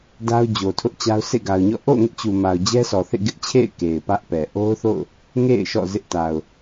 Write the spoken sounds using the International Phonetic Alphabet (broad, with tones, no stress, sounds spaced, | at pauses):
d a˦ ʊ̯ d͡ʑ o˨ tʰ ʊ˦ ʔ t͡ɕ a˦ ʊ̯ s ḛ˦˨ ɡ a˨ ʊ̯ ɲ ɔ̰˦˨ ʔ o̰˦˨ ʊ̯ ŋ ɪ˦ ʔ t͡ɕ u˨ m a˨ ʊ̯ d͡ʑ ɛ˦ s ɔ˨ θ ḛ˦˨ ɡ ɪ˦ ʔ t͡ɕʰ ḛ˦˨ ɪ̯ k e˨ ɪ̯ p ä˦ ʔ p ɛ˨ ʔ o˦ ʊ̯ θ o̰˦˨ ʊ̯ | ŋ ḛ˦˨ ɪ̯ ʃ ɔ̰˦˨ z ɪ˦ ʔ t a˨ ʊ̯